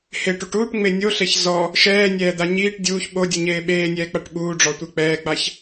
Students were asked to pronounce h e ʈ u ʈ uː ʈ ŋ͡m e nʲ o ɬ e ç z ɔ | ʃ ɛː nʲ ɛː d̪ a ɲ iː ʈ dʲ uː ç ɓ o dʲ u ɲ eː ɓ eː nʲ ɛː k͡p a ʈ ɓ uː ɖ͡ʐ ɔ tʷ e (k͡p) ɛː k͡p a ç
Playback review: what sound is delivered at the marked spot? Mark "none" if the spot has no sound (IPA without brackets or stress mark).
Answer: k͡p